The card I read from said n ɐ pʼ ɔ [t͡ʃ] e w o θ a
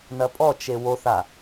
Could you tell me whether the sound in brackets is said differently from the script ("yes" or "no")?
no